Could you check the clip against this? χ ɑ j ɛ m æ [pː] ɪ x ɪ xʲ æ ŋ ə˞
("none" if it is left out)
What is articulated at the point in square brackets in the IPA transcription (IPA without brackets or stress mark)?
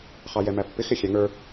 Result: pː